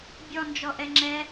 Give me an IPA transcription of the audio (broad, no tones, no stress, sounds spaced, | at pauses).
bʲ ɔ n d͡ʒ ɔ ʔ ɛ ŋ͡ǁ ɛ